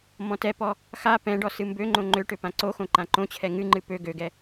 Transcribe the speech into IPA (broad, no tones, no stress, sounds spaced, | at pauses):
m ɔ̃ t ɛ p ɔ | x a p ɛ̃ ɖ ɔ s ɨ m b ø ŋ͡ǃ õ ŋ͡ǃ ø ʈ ø p ã ǀ o x õ ǃ ã ǃ õ t͡ɕʰ ɛ ŋ ɨ ŋ͡ǃ ɨ p ø ɡ ø ɡ ɛ